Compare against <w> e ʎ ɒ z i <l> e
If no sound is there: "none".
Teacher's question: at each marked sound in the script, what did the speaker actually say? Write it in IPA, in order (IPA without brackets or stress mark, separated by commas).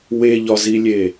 w, lʲ